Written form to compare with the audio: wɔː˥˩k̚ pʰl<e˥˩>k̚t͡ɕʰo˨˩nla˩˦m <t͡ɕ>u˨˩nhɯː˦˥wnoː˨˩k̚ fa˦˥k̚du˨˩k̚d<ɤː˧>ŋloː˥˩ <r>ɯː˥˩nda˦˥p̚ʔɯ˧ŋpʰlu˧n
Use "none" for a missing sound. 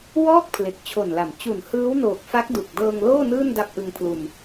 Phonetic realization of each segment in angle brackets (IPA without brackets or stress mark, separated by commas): e˨˩, t͡ɕ, ɤː˧, n